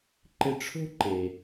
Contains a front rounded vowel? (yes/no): no